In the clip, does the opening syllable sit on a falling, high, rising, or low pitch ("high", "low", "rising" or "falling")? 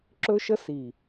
high